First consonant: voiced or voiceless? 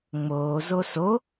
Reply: voiced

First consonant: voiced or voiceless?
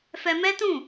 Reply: voiceless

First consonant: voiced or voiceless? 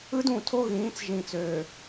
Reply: voiced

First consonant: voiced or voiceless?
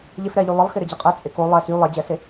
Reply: voiced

